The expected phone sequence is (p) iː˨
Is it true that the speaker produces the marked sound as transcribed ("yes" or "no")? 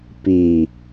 yes